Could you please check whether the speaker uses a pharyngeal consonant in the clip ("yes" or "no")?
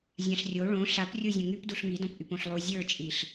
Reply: no